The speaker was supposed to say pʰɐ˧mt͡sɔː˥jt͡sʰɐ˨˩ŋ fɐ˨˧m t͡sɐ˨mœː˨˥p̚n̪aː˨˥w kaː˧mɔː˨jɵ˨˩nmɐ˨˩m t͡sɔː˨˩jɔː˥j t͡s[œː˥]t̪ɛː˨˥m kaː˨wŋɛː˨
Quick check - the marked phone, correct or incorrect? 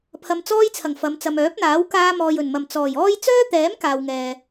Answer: correct